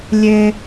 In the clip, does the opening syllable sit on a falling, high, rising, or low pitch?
low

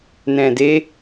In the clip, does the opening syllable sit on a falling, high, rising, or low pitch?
low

